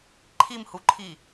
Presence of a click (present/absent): present